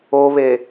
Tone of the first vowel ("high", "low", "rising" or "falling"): low